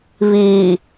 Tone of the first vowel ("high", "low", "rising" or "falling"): low